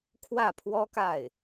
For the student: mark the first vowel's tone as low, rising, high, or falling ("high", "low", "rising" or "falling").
falling